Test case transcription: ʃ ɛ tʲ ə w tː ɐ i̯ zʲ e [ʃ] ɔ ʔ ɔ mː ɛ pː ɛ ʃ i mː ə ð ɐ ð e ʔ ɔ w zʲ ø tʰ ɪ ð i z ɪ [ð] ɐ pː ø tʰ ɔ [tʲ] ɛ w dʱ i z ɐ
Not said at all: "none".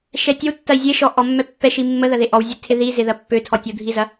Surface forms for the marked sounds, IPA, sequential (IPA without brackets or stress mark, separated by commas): ʃ, ð, tʲ